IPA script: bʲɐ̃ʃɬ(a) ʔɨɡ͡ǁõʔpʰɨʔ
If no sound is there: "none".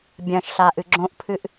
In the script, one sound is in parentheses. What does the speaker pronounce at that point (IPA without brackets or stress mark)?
a